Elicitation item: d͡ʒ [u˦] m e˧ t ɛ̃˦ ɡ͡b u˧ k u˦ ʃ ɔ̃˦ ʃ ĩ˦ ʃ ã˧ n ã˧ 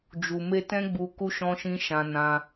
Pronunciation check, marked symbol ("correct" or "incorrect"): incorrect